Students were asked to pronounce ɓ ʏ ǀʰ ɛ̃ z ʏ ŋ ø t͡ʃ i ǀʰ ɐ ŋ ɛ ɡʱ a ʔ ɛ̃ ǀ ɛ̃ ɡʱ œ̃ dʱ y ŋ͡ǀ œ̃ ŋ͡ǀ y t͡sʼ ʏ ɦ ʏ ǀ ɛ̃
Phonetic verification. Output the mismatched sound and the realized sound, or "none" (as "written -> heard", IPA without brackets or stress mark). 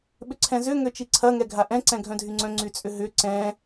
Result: none